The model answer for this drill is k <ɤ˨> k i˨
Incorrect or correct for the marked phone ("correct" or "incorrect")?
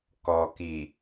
incorrect